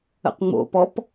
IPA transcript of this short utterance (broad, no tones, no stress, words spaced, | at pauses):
ə̰qŋ͡mo̰pɔp